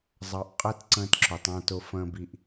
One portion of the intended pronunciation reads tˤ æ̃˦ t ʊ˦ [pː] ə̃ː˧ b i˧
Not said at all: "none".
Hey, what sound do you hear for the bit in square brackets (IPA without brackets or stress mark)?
f